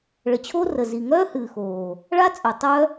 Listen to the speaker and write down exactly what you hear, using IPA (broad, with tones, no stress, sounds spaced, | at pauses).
ɭ ə˨ t͡ɕʰ o˦ r ə˨ z i˨ ŋ œː˦ h ɨː˨ x oː˨ | ɭ a˦ t͡sʼ œ˨ tˤ œ˦